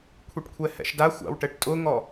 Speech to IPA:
kʷʰ i ʈ kʷʰ ɛ h ɛ̰ ʃ d a xʷ a̰ w ʈ ɛ ʈ tʼ ʊ ŋ ɔ

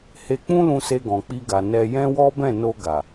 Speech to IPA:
h e˧ k͡p ũ˦ l ũ˧ s e˧ ɡ ɔ̃˨ k͡p i˧ ɡ a˨ n ɛ˧ j ɛ̃˦ w ɔ˦ b ɛ̃˦˨ n o˧ ɡ a˨

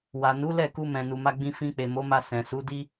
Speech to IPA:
w a˨ n u˨˦ l ɛ˦˨ k u˧ m ɛ̃˨ n u˨ m a˧ ɡ͡b ĩ˧ f ĩ˧ k͡p e˨ m o˨˦ m a˧ s ɛ̃˨ s u˨˦ d i˦

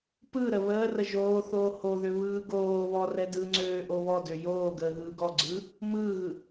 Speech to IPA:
p ɯ ɾ ə β əː r ə ʒ oː θ oː h o ð ø β ɯː ɡ oː β ɔ r ɛ d ɯ ŋ͡ǀ øː ʔ o β ɔ d ø j oː ɡ əː ɣ ɯː ɡ ɔ ɡ͡ǀ ɯː | m ɯː ɣ ɯ

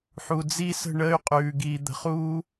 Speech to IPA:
ħ u˨ d͡z i˦ s ə̤˦˨ ɳ əː˦ y̯ qʼ ʉː˨ ɡ iː˨ d̪ ə̤˨ χ uː˦

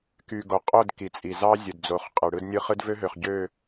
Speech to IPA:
k y˨ ɡ o˨ qʼ o˦˨ d k i˨ t͡sʼ i˨ z ɑ˦ zʲ ɯ˨ d d͡z o˨˦ χ qʼ ɯ˨ ɽ ɯ˦ d nʲ ɯ˦ χ ɯ˦ d v ø˦ ɦ ø˨ χ ɟ ø˦˨

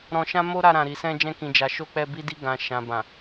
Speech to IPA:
ɾ ɔ̃˧ ʃ ã˦ m o˦ ɾ a˧ ɾ ã˨ ɾ i˨ s ɛ̃˧ d͡ʒ ɛ̃˧ k ĩ˨ d͡ʒ a˨ ʃ o˧ k͡p ɛ˧ b i˧ d i˧ ɡ ã˨ ʃ ã˨ b ã˨

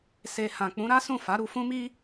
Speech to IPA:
s e˨ h ã˨ k͡p ũ˨˦ ɾ a˦ s ũ˦˨ f a˨˦ ɾ u˧ f ũ˦ m i˦

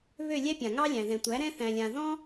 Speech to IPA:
β ø˥˩ lʲ ɛ˥ pʲ ã˩ ŋ ɑ˥ lʲ æ̃˩ ð ɛ̃˩ tʷ æ˩˥ ɾ ɛ̃˥ θ æ̃˧ lʲ ã˧ ð ɔ̃˥

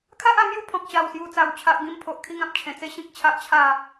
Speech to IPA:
kʰ a˦ ʔ a˧ m j u˥˧ pʰ ɔ̃˨ k̚ ɕ a˨˩ w s j u˨˩ t͡s a˨˩ w t͡ɕʰ a˨ ʔ ɡ ĩ˧ m pʰ o˨ ʔ kʰ i˧ ŋ ã˨ p̚ t͡ɕʰ ẽ˨˩ t͡s e˦ ɕ ĩ˦ k̚ t͡ɕʰ a˦ ʔ t͡ɕʰ a˥˧

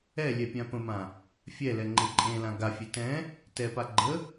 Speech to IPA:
ɛ lʲ ɛ pʲ ã p ə̃ m ã | fʲ ɛ l ɛ ŋ͡ǃ e ǃʼ ẽ l ã ɡ a fʲ e t ɛ̃ | t ɛ p a ɡ͡ǃ ə

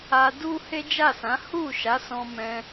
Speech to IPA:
a˧ d u˦ h e˦ d͡ʒ a˦˨ s ã˨˦ h u˦˨ ʃ a˨˦ s ɔ̃˧ m ɛ̃˧

